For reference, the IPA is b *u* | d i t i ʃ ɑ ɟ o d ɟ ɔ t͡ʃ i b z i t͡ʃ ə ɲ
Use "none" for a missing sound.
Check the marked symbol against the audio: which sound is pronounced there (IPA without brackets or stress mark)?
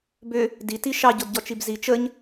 ʏ